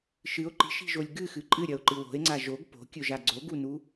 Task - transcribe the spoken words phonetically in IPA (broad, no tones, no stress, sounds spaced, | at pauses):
ʃ ɨ o̯ ǃ i̤ ʃ i̤ ʒ o lʲ ɡ ɨ x ɨ ǃʼ ɨ ɾʲ ɐ o̯ ǃ ɨ w o̤ e̯ ŋ͡ǀ a ʒ o ɡ p o̤ kʲ ɵ ʒ a ɡ͡ǀ o ɡ u n u